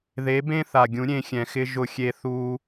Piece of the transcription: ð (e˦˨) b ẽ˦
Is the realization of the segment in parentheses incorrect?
yes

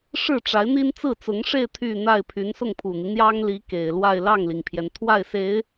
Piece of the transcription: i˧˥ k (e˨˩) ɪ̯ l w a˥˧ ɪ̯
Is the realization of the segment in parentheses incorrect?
no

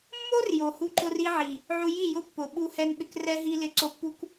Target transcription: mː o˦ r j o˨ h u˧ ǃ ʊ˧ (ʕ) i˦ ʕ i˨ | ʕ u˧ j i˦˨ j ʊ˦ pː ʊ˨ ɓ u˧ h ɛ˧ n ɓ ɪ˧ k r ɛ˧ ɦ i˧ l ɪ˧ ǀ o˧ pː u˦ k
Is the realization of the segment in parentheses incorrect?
yes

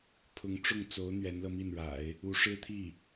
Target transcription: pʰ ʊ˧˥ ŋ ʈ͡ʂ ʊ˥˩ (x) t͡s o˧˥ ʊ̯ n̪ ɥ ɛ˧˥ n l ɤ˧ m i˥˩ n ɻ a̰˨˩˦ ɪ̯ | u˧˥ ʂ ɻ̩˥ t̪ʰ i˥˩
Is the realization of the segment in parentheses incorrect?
yes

